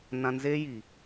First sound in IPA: n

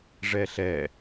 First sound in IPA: ʐ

